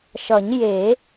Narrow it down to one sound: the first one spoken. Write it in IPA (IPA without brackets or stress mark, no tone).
ʃ